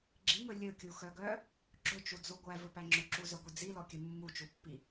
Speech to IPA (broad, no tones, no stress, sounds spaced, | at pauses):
ɡ͡ǁ i ŋ ɵ lʲ ɵ kʲ u x œ ɡ œ | ɡ͡ǁ ɵ t͡ʃ u d͡z u ɡʷ æ v ɵ p æ ŋ͡ǁ ɵ ǁ u z œ ɡʷ i d͡z i l ɔ kʲ ɵ mː u t͡ʃ u pː i